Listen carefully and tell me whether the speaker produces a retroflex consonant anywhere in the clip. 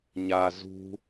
no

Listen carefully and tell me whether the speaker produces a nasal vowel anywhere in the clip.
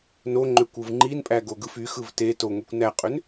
no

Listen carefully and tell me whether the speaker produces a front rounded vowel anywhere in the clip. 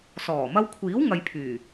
yes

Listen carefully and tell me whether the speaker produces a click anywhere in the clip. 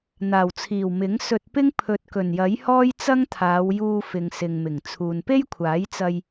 no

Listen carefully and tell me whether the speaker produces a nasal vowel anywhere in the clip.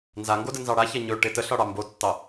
no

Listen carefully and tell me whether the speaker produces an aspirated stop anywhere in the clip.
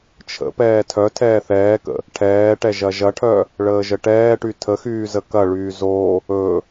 yes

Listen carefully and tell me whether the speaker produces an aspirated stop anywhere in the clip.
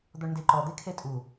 yes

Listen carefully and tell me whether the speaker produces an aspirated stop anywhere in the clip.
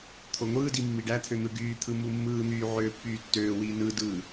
yes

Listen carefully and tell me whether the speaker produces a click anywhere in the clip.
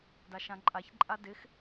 yes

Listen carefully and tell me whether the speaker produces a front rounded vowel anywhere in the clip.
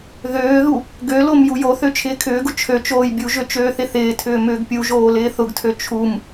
yes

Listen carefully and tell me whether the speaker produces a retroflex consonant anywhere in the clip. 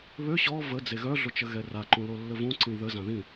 no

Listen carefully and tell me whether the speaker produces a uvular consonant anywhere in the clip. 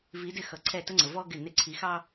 no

